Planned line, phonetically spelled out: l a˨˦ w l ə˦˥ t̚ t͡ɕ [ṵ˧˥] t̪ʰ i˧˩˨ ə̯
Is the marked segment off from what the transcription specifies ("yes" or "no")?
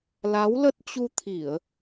yes